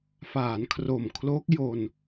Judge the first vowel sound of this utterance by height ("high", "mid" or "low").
low